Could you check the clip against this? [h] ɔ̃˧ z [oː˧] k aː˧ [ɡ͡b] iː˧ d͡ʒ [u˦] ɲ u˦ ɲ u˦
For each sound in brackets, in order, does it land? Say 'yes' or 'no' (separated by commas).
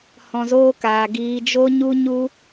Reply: yes, no, no, no